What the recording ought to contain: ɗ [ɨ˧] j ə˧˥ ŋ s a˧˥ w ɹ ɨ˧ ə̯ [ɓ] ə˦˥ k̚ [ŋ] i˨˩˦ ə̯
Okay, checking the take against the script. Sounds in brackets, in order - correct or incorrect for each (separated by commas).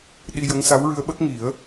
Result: incorrect, correct, correct